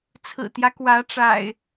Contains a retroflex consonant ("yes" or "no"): yes